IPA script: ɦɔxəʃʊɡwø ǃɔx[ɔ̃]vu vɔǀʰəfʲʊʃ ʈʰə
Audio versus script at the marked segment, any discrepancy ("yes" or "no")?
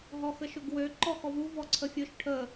yes